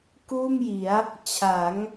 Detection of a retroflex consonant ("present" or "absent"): absent